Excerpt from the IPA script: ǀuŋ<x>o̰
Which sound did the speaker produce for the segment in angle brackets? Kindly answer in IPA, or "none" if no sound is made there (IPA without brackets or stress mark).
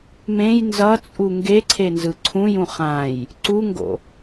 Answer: ɡ